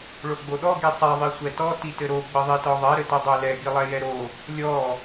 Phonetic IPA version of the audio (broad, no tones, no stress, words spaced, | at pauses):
ɭoɡ͡boɗɔ ɡisˤɛ ðˤisʷɛtɔ titɘɾo ɡ͡bɘðˤitɔðˤɛ ɾɘtɘdˤolɛ ɡilˠɛjɛɾo | lʲɔ